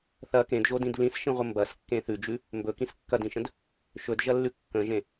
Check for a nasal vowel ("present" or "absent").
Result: present